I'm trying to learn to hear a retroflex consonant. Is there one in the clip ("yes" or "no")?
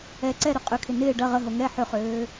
yes